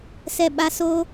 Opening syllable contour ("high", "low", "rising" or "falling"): falling